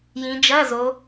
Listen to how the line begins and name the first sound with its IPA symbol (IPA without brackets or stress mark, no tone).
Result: j